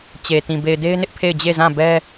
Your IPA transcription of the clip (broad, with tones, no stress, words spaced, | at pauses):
t͡ɕe˨tĩ˨ be˨ɪ̯de˦ɪ̯nɪ˦ʔ pʰe˦˨ɪ̯d͡ʑe˦˨zã˦˨ bɛ˦